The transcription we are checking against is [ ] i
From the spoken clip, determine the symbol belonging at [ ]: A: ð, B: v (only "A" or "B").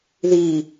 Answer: A